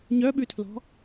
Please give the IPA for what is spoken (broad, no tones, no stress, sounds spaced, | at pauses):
ɲ œ ɓ ʉ tʰ l ɔ̤